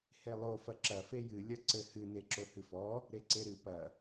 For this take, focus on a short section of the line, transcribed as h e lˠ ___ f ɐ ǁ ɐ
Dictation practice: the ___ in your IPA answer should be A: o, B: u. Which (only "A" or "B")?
A